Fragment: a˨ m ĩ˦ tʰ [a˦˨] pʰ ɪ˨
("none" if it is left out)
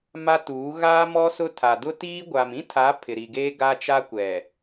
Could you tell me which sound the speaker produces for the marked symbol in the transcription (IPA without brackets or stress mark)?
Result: a˨˦